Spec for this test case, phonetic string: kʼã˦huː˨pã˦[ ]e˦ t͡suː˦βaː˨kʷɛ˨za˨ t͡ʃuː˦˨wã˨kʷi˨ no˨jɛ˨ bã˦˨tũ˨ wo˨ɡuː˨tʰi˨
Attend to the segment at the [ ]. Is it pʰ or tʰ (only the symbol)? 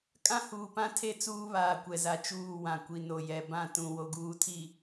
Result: tʰ